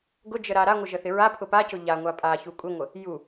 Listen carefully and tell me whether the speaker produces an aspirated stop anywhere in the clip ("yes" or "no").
yes